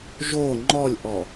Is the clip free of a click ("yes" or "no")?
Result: no